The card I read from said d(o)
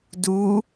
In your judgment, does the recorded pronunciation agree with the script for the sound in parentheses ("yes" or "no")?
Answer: no